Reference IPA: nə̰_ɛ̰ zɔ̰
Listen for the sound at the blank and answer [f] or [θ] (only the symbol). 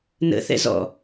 θ